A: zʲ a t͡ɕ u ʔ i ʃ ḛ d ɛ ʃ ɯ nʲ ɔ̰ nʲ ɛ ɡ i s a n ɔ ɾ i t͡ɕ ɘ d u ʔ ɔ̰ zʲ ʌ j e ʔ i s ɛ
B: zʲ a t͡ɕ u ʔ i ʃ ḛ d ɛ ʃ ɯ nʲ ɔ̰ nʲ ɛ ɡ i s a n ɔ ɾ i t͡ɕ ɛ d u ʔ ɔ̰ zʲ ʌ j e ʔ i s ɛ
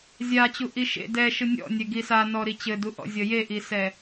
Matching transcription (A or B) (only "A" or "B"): A